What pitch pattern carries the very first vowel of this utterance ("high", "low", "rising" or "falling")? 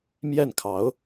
falling